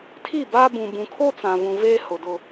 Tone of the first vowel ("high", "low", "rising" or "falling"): falling